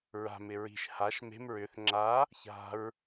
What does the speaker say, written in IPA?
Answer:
ɹ a̤ m ɪ ɹ i̤ ʃ h a ʃ m e̤ m ɹ ʏ θ ŋ͡ǁ a | ç a̤ ɹ

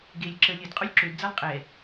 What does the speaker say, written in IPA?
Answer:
ɡ e lʲ ǁ ə lʲ ə d qʼ o lʲ ǁ ø d d͡z a lˠ qʼ ɛ

